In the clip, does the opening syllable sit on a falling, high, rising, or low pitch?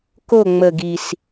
falling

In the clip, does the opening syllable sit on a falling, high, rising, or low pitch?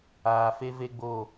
low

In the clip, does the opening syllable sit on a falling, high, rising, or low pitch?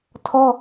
high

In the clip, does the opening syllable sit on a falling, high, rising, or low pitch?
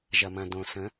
low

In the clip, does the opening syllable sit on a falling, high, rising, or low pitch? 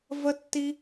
high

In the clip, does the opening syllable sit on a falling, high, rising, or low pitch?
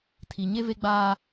low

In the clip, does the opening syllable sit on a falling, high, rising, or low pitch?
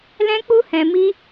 high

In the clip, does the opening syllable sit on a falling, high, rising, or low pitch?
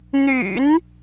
low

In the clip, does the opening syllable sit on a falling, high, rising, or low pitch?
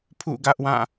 falling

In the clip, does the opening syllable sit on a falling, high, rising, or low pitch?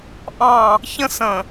falling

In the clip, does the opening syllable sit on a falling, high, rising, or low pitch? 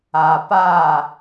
low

